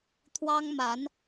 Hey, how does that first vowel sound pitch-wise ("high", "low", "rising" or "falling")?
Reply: high